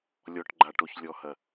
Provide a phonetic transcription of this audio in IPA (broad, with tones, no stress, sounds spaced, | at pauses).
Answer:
lʲ ɔ˨ ʈ ɡ͡ǃ a˨ ʈ o˨ ç lʲ ɔ˨ h ɐ˨